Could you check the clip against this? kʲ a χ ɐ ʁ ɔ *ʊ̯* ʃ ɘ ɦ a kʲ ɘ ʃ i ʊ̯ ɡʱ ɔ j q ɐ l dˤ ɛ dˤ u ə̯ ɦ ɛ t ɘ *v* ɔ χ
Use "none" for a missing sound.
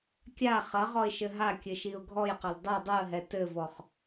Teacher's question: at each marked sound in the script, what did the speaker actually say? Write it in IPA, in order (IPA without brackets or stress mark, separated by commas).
ɪ̯, v